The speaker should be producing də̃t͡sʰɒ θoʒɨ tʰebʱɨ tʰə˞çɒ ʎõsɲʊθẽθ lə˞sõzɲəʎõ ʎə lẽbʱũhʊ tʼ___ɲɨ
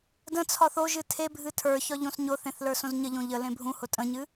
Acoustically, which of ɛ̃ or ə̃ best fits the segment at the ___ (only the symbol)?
ə̃